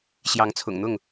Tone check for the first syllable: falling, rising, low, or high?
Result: rising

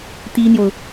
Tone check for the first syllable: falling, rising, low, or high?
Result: high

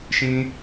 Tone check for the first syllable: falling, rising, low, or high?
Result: low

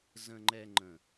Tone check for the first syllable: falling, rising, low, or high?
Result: high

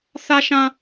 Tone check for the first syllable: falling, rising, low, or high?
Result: high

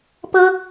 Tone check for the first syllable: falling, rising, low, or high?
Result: high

